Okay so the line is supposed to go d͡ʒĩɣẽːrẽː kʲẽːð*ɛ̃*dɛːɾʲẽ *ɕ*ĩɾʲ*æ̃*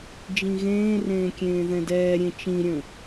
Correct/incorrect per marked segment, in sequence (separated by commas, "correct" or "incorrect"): correct, incorrect, incorrect